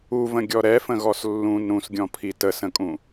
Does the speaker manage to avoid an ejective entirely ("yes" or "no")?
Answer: no